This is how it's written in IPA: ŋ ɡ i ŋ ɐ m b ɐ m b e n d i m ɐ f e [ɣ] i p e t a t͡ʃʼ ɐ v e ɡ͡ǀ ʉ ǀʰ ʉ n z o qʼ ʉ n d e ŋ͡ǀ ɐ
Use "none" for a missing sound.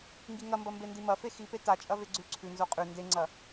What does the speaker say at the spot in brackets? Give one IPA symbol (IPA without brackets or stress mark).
x